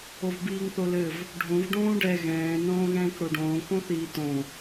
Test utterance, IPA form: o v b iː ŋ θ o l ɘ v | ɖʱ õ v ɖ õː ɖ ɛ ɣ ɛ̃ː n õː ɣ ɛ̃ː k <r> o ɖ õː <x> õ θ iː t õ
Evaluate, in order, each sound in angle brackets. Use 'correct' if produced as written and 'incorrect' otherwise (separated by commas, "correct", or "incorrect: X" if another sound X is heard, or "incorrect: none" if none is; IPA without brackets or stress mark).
incorrect: ɽ, incorrect: k